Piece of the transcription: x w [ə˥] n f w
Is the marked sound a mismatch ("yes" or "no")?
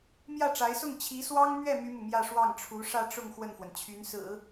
yes